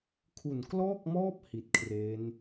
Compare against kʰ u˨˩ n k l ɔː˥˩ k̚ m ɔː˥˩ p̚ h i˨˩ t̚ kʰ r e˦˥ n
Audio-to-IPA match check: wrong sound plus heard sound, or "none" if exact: none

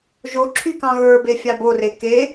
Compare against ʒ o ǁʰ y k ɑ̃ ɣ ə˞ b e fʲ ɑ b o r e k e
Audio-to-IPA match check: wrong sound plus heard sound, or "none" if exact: none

